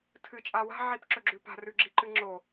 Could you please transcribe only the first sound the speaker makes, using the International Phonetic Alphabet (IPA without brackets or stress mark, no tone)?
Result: tʰ